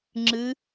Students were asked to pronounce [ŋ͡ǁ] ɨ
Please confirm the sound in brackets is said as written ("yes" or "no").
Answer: yes